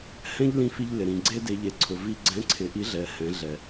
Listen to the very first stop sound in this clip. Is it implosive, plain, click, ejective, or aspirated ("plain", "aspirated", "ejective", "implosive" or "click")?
click